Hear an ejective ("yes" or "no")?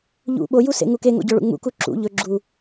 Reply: no